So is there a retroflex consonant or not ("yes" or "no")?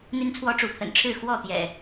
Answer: yes